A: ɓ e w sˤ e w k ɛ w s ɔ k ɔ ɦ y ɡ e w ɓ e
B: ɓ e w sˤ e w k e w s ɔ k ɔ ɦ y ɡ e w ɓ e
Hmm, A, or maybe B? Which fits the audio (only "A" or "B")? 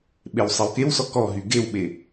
B